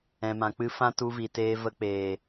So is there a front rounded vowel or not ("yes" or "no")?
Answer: no